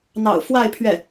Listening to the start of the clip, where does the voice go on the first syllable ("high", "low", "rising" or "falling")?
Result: low